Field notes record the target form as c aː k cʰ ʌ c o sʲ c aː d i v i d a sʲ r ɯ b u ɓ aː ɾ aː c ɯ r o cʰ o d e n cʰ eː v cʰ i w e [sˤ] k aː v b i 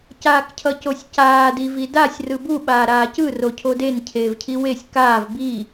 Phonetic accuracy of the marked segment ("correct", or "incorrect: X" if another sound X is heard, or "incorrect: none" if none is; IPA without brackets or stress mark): incorrect: sʲ